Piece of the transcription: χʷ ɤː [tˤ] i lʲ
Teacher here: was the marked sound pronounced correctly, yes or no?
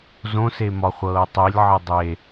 yes